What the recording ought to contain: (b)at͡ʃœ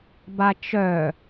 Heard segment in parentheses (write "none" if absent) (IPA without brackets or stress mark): b